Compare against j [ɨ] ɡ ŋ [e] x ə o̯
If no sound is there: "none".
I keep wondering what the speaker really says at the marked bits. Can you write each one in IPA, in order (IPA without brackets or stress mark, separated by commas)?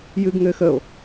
ɨ, ɘ